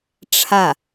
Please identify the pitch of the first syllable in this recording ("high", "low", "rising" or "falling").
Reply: falling